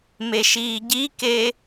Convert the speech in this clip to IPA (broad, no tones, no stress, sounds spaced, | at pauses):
m e ʃ iː ɟ i k e